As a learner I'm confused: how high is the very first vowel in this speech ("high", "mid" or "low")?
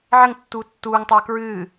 mid